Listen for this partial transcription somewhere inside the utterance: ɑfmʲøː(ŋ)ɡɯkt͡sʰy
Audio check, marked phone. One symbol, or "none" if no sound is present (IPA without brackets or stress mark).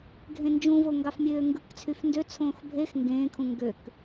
ŋ